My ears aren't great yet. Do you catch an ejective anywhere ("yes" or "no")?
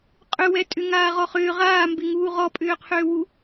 yes